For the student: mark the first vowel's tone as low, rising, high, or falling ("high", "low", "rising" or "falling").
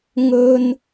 high